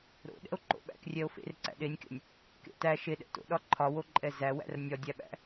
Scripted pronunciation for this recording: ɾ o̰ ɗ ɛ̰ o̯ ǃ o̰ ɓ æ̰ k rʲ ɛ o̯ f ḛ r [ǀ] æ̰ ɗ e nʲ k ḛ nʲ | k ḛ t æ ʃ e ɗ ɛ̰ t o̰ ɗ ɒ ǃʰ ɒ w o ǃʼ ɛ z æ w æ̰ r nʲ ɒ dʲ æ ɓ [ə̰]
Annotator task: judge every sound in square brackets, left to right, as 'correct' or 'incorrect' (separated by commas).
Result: correct, incorrect